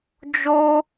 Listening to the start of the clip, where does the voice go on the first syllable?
high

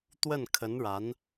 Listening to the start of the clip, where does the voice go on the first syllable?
falling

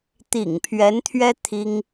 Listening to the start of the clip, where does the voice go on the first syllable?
low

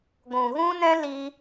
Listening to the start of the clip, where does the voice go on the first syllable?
low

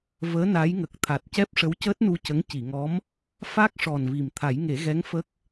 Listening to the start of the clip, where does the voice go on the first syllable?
rising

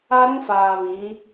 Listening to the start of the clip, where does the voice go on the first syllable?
high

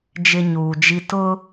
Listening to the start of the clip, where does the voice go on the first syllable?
high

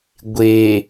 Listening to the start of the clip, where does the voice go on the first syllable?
low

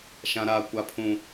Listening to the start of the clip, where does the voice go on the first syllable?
low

